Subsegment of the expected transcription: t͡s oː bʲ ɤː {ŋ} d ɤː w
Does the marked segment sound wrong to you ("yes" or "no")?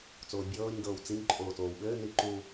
yes